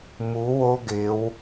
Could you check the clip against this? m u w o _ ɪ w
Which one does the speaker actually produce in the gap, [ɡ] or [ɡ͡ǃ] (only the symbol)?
ɡ